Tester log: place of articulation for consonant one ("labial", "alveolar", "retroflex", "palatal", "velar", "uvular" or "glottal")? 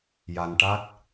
palatal